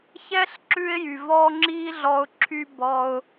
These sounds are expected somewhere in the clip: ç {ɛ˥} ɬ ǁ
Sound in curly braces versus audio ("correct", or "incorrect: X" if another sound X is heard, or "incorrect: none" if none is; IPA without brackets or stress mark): correct